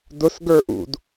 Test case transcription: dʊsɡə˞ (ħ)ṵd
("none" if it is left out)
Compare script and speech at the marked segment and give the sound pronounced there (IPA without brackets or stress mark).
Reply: ʔ